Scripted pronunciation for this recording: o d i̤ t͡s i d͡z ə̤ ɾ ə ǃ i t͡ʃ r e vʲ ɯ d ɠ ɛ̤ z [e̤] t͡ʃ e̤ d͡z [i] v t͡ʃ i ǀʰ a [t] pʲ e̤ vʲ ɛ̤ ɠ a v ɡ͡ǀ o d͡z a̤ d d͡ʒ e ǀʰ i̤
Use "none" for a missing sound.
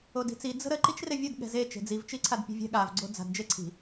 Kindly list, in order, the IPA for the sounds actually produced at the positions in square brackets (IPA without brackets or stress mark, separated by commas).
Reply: e, i, d